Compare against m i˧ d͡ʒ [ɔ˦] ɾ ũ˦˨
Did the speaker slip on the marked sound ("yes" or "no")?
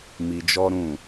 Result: no